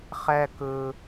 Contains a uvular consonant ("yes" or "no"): yes